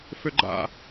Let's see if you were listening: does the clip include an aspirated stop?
no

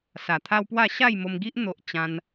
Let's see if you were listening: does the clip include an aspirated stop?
yes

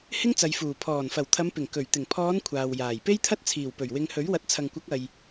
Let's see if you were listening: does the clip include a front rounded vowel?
no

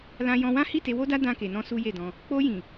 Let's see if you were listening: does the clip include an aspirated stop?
no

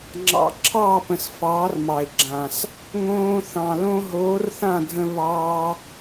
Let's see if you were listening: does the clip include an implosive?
no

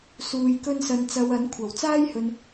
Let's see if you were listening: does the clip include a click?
no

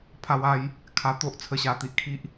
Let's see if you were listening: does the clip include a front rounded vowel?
no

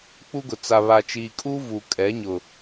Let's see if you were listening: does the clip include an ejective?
yes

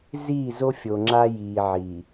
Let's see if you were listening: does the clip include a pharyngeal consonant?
yes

